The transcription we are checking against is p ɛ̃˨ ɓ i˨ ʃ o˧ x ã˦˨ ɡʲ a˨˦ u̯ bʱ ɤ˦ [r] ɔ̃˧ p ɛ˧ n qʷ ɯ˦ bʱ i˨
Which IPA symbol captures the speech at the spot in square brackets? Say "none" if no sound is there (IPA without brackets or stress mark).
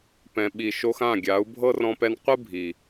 r